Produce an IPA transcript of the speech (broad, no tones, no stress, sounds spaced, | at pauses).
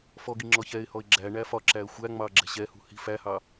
f ɔ ɡ i ŋ͡ǁ ɔ ç ɛ ɪ̯ h ɔ ɪ̯ ɡ͡ǁ æ ɳ æ f ɒ ǁ æ ə̯ xʷ æ ŋ͡m ɑ ɡ͡ǁ ɛ̤ ɕ ɛ h ṳ h i̤ f æ h ɑ